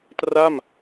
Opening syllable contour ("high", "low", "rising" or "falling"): falling